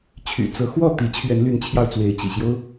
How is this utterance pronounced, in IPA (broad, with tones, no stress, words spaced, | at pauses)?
t͡ɕʰy̰˨˩t͡sɤ˨˦ xwɔ˥˨t̪i˨˦t͡ɕʰɥɛ˨˦n ly˨˦nt͡ɕʰjɑ˧ʊ̯t͡swe˨˦ɪ̯ t͡ɕḭ˨˩ɕjo˦ʊ̯